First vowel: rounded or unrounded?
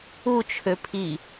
rounded